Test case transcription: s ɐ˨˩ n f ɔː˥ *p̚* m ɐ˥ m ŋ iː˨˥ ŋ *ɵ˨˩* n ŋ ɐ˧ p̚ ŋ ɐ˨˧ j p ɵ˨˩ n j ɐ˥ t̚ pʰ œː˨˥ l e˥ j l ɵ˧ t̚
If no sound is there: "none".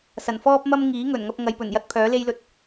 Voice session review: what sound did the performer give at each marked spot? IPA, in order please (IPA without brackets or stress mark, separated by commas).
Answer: p̚, ɵ˨˩